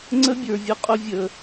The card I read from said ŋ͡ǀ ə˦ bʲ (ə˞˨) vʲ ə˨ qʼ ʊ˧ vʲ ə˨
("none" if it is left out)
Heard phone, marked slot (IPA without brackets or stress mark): ə˞˨